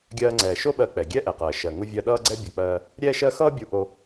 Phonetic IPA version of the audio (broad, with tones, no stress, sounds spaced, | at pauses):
ɡʲ ɜː˧ ŋ͡ǀ ɛː˩ ʃ o˥ ɓ ɜ˧ k͡p ɛ˩ ɡʲ ɛ˥ ʔ ɛ˩ q ɜː˩ ʃ ɜ˩ ŋ u˧ vʲ ɜ˧ ɗ ʌː˥ ɡ͡ǀ ɛ˥ bʲ ʌ˧ k͡p ɜː˥ | ɾʲ ɛː˥ ʃ ɜ˥ x ʌː˥ bʲ u˧ ʔ o˧